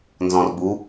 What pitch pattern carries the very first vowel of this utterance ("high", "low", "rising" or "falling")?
low